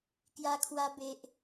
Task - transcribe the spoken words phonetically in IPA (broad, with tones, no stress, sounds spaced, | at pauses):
k j a˧ kʰ w a˧ b e˨ ʔ